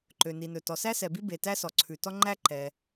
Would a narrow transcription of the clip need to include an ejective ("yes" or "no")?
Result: no